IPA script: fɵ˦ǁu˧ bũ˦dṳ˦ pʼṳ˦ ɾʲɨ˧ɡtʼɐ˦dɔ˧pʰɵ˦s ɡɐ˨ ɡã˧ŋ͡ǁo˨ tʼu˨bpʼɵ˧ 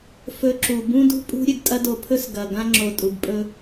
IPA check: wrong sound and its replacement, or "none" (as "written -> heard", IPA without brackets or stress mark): ɔ˧ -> o˧